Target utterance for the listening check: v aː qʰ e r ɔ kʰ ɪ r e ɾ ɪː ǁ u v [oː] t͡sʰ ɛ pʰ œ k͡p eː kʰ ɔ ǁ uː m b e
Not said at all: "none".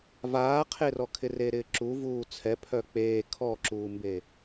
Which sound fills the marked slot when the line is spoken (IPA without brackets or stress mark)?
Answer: uː